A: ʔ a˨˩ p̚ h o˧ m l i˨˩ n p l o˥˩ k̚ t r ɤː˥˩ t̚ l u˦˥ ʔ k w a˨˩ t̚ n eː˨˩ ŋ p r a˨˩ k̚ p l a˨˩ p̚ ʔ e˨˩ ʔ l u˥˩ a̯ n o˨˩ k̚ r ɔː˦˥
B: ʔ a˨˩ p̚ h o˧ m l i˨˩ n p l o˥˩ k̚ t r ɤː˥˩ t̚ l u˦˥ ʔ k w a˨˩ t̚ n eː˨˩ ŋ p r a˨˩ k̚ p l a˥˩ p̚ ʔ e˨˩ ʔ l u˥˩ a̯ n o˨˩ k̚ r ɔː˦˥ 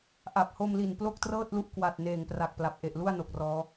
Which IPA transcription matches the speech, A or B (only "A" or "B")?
A